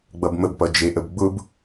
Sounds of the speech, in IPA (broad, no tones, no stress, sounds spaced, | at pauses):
ɡ͡b ʌ b m ə b p ʌ d͡ʒ e ʔ ə b ɡ͡b ʊ b